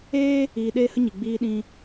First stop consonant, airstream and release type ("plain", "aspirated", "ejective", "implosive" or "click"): implosive